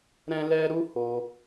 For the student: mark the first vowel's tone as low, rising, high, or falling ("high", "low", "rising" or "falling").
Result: high